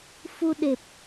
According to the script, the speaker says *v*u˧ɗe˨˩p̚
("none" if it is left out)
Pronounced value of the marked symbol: f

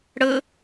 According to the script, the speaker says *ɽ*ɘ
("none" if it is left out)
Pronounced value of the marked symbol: ɽ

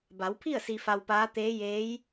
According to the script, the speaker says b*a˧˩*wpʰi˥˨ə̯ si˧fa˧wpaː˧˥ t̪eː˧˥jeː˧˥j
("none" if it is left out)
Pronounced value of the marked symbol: a˩˧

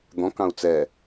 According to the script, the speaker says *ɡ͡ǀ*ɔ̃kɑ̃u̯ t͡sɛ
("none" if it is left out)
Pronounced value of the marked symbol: d̪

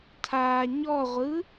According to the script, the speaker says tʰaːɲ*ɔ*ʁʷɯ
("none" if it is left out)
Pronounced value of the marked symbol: ɔ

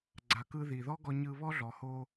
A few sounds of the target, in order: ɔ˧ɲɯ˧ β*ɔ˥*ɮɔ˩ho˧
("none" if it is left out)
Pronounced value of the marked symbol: ɔ˥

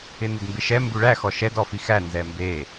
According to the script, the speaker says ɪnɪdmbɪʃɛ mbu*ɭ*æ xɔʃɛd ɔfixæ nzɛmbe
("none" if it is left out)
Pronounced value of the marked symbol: ɭ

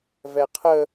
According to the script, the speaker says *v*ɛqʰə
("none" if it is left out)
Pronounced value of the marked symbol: v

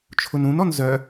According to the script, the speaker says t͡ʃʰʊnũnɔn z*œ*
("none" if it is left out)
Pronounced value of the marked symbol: œ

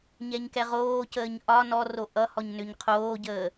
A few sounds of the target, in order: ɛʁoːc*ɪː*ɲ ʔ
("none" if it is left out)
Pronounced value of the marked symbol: əː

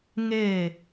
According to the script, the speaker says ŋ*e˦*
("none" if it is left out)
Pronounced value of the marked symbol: e˦˨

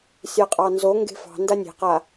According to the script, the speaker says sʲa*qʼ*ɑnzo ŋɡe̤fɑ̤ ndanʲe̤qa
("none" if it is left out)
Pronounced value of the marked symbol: qʼ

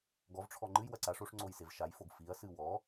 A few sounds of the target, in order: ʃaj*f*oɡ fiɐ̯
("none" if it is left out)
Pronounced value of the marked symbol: f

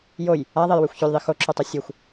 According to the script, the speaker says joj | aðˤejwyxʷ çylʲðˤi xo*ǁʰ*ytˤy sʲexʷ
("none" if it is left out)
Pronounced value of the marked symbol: ǁʰ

